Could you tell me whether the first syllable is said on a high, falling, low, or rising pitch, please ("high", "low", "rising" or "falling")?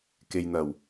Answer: low